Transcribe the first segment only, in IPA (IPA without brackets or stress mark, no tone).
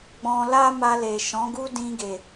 ɡ͡b